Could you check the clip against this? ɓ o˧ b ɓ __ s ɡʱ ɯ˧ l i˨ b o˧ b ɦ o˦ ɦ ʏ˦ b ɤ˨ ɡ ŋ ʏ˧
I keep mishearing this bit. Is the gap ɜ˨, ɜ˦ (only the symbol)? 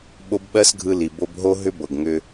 ɜ˦